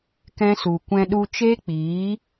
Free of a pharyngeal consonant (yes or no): yes